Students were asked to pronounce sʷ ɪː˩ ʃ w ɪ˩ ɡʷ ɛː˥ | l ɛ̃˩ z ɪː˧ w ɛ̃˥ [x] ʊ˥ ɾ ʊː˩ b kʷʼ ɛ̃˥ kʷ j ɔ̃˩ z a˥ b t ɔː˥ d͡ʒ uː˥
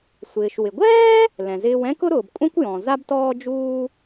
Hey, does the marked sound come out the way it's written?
no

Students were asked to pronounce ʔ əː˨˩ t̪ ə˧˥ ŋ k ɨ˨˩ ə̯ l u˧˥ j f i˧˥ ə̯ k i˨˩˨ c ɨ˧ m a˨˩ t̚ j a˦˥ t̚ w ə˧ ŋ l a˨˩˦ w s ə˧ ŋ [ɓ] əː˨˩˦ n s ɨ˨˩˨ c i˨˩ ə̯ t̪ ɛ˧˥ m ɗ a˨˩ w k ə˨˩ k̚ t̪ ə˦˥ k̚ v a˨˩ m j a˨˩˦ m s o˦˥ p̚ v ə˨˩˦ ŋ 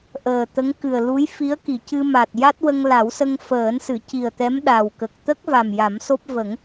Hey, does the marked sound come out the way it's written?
no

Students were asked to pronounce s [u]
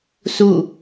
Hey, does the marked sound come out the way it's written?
yes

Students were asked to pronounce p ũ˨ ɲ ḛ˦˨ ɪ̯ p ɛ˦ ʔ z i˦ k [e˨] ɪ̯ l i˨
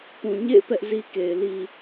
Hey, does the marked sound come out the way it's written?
yes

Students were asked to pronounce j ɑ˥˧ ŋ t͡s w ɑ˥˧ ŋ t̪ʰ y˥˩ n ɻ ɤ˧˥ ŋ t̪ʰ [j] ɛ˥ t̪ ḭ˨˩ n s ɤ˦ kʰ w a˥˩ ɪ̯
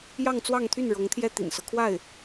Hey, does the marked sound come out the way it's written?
yes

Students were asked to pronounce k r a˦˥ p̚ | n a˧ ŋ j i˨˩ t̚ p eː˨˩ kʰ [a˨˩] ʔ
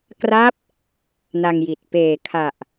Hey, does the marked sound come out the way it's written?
yes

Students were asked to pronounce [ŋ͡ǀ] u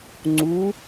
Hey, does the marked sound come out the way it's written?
yes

